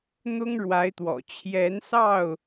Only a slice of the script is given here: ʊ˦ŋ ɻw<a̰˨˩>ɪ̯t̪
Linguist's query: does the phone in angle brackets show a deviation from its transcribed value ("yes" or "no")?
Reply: yes